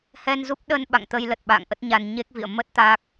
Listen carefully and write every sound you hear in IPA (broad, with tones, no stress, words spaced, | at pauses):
hɛ˧nzu˦˥p̚ɗə˧n ɓa̰˧˨ŋt̪ə˧jlə˨˩t̚ɓa̰ː˧˨ŋ ʔə˦˥t̚ɲa˧n ɲe˦˥k̚vḭ˧˨ə̯ mə˦˥t̚ t̪a˦˥k̚